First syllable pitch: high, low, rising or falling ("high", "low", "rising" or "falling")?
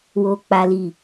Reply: high